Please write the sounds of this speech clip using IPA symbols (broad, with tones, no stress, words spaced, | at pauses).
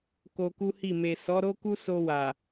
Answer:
ko˧ku˦hi˦˨ me˨sɔ˨˦ɾo˦ku˦ so˧wa˨